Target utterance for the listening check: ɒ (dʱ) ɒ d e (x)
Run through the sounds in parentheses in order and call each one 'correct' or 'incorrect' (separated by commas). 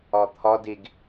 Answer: incorrect, incorrect